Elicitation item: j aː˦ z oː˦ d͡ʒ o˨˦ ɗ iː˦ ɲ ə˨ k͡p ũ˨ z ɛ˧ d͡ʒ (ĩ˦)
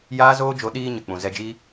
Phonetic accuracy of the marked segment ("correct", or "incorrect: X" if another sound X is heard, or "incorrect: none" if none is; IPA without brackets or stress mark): incorrect: i˦